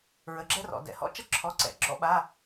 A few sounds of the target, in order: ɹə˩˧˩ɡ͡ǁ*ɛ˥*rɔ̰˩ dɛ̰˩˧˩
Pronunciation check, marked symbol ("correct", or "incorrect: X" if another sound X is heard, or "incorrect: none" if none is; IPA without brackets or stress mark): correct